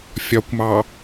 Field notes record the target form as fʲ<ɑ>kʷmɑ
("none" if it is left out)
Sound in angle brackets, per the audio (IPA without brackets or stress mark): ɒ